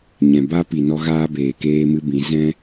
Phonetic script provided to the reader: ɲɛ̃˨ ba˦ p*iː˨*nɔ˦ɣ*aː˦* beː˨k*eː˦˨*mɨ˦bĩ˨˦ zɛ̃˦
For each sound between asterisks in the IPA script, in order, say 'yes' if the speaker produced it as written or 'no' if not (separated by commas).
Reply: no, yes, no